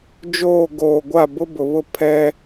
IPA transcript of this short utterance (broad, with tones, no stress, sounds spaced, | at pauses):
d͡ʒ oː˦˨ ɡ oː˨ ɡʷ a˦˨ b ʊ˦ b ʊ˨ β ʊ˦ pʰ ɛ˦